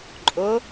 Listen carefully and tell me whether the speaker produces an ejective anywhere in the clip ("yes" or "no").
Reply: yes